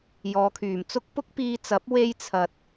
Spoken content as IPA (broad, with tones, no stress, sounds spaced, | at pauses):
j ɔː˨˧ kʰ yː˨ m t͡s ʊ˥ k̚ p ʊ˥ k̚ p iː˧ t͡s ɐ˨˥ p̚ w e˧ j t͡sʰ ɐ˨ t̚